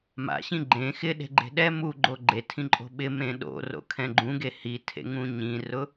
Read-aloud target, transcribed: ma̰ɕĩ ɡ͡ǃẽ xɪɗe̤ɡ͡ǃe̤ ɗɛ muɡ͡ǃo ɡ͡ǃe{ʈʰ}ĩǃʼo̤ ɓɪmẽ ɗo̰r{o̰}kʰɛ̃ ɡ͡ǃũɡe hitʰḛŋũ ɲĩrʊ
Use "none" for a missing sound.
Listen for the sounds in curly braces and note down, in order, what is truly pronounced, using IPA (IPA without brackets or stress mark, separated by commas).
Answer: tʰ, o̰